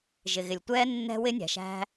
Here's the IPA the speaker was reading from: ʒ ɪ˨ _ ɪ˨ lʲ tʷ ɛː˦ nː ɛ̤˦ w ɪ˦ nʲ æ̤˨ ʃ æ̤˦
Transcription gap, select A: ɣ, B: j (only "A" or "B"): A